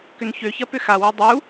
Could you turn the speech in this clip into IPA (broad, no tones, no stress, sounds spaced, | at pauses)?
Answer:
k ʏ n ç ø ç ɐ p ʏ x a w u dˤ u